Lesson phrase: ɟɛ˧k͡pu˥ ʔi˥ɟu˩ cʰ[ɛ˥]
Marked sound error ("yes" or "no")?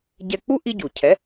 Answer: yes